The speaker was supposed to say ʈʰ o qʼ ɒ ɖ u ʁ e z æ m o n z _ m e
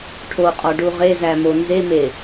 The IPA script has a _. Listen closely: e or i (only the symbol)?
e